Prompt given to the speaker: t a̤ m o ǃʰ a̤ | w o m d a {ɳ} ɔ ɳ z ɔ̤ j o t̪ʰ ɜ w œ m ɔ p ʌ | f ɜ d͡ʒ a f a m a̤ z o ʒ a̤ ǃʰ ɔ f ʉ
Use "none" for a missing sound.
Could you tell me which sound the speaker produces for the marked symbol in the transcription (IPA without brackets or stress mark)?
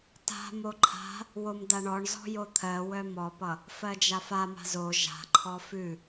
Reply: ɳ